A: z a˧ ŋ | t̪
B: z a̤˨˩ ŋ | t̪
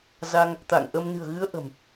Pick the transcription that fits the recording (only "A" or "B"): A